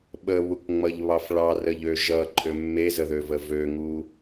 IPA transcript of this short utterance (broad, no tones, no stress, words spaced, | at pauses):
ɓəβukŋ͡mʌʎβɑf ɭɑrəʎø ʒʌǃʼø mːezəðøvə vøŋu